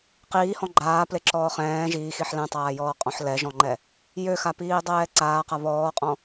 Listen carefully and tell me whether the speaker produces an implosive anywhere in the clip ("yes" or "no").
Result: no